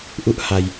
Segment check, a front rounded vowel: absent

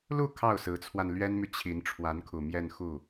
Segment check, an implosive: absent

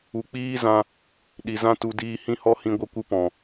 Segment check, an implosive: present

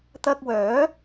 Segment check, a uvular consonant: absent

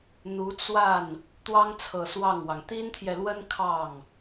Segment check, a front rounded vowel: absent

